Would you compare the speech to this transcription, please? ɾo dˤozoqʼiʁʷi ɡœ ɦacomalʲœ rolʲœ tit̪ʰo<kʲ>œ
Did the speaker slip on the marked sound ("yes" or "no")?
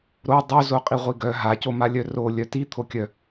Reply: no